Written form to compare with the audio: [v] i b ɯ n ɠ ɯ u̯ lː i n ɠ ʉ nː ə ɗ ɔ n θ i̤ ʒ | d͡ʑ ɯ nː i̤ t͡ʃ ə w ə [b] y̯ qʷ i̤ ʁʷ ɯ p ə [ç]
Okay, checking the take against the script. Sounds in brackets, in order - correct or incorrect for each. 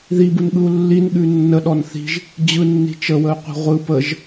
incorrect: ð, incorrect: none, incorrect: ʒ

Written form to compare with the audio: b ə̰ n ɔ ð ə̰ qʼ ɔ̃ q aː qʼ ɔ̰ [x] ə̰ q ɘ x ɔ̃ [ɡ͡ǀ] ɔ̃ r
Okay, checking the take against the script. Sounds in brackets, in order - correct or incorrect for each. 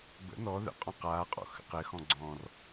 correct, correct

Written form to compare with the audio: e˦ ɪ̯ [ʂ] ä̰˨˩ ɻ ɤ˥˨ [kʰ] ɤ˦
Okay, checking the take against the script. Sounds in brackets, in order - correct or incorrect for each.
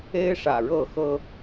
correct, incorrect: x

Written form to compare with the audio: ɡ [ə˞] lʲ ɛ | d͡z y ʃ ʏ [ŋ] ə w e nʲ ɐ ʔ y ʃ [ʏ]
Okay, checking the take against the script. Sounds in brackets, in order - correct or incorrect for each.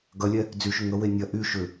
incorrect: ɐ, correct, correct

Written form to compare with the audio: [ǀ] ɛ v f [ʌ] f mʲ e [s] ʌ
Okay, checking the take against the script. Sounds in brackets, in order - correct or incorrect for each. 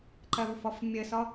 incorrect: ǃ, correct, correct

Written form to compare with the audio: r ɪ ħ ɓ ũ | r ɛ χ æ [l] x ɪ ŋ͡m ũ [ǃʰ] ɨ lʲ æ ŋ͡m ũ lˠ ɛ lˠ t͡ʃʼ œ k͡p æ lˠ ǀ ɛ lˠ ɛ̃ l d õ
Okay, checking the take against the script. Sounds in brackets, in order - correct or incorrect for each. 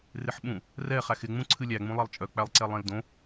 incorrect: none, incorrect: ǀʰ

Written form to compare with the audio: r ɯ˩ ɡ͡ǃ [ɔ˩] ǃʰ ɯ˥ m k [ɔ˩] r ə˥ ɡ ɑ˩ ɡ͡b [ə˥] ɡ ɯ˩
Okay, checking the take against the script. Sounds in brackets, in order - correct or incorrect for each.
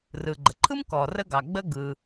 incorrect: ə˩, correct, correct

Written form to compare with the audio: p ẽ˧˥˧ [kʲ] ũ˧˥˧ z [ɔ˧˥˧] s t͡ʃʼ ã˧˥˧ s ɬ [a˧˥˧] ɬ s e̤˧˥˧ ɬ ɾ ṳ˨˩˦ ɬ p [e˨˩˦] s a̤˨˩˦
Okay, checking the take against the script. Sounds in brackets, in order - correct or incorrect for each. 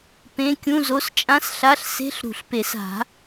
correct, incorrect: o˧˥˧, correct, correct

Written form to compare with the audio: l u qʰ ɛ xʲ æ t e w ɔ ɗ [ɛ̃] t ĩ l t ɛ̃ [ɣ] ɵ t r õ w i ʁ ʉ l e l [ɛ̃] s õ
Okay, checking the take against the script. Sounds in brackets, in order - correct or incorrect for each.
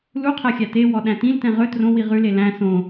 incorrect: æ̃, incorrect: ʁ, incorrect: æ̃

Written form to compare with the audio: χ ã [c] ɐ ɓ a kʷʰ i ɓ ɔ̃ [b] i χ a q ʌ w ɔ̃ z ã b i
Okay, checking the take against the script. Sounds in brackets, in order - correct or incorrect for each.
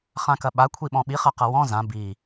incorrect: k, incorrect: ɓ

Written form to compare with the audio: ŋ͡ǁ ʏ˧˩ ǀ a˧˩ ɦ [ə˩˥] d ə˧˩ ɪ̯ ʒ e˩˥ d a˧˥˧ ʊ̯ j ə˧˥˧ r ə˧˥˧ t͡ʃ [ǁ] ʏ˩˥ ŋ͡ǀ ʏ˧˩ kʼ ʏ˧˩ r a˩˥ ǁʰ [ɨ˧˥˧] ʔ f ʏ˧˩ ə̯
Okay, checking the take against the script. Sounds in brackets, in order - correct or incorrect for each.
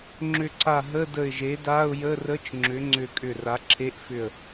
incorrect: ə˧˥˧, incorrect: ŋ͡ǁ, incorrect: e˧˥˧

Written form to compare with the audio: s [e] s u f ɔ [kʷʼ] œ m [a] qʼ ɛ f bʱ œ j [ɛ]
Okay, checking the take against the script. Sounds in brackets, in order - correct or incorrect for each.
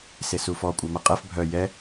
correct, correct, incorrect: ɐ, correct

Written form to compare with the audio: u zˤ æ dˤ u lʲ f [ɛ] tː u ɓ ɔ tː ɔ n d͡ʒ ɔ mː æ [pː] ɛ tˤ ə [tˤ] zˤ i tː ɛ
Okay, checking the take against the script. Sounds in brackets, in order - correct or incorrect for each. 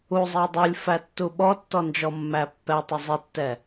incorrect: æ, correct, incorrect: none

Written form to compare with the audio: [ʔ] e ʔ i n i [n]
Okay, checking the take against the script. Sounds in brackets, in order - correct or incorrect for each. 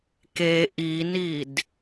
incorrect: k, incorrect: d

